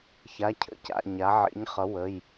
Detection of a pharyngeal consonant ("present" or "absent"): present